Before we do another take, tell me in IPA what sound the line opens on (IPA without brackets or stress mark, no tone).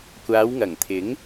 kʷ